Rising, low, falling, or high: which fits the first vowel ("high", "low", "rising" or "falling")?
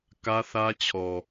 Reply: high